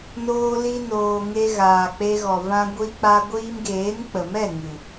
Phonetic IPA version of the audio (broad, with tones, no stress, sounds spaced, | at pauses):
n oː˧ l i˧ n oː˨ ŋ e˧ ɣ aː˨ k͡p e˧ ɣ ɔ˨ v ã˧ ɡʷ i˧ k͡p a˧ ɡʷ iː˧ m ɡ eː˨˦ n k͡p ə˨ m ɛ˦˨ ŋ ɨ˨